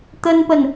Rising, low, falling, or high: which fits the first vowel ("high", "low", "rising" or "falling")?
high